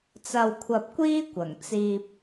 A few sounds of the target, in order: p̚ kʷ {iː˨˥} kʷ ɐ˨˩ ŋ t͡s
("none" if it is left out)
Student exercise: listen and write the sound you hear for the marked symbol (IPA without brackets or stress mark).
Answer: iː˥